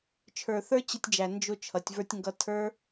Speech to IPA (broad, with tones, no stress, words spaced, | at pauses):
t͡ʃʰə˞˨θə˞˦t͡ɕɪ˧tʲd͡ʒæ˨ nd͡ʒʊ˧ t͡ʃʰʌ˨˦tʲvə˞˦tʲŋɡʌ˦ tʰə˞˦